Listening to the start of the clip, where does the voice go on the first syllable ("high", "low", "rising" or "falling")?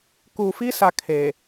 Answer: low